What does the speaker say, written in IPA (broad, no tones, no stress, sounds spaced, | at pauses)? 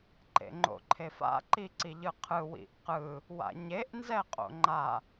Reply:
ǃ ḛ ŋ͡ǃ o̰ ǃʰ e f a̰ ǃ i ǀ i ʎ ɯ qʰ ɯ w ḭ ʔ q ɯ | w a̰ ɲ e ʔ n z ɛ qʼ o̰ ŋ͡ǃ a